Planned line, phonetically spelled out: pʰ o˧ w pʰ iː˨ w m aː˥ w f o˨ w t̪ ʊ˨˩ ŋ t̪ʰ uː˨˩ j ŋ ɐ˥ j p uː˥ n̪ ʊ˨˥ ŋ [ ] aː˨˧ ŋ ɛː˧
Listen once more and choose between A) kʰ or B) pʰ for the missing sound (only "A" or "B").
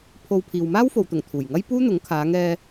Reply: A